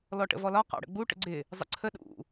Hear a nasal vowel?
no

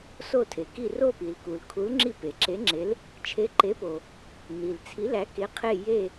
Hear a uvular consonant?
yes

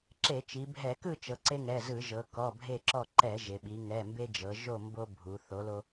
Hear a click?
yes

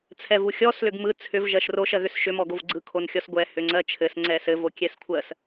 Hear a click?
yes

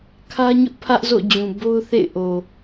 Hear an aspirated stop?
yes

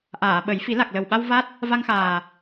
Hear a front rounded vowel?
no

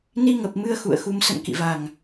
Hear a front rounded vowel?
no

